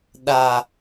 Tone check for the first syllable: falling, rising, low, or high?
high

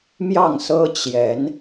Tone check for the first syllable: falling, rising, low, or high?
falling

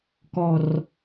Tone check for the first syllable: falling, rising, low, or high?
low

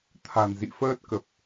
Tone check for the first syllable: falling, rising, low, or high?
low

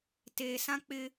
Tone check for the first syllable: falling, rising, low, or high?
low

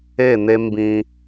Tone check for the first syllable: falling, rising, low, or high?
falling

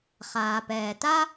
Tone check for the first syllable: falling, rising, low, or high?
low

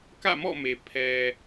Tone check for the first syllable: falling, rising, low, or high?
falling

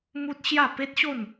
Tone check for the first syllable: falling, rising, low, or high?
high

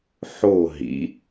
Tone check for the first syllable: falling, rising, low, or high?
falling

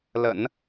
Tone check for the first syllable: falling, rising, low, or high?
low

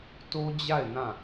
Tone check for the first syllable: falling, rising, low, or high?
high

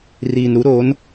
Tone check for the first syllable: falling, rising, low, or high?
low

